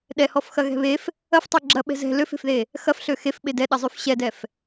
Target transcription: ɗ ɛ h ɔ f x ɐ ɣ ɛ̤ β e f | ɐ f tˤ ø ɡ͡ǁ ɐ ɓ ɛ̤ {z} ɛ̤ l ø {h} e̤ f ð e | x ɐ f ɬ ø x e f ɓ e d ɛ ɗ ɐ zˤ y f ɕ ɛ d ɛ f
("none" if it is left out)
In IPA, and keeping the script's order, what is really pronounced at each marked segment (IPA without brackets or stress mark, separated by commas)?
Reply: z, f